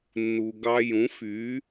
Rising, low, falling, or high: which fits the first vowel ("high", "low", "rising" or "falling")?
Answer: low